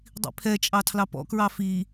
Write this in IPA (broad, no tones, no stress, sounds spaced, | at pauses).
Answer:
dˤ ḭ pʰ ɛ t͡ʃʼ ɑ tʰ l ɑ p ɔ̰ k ɹ ɑ f i